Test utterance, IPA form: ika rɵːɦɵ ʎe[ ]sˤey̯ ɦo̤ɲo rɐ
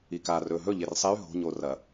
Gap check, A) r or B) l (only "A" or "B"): A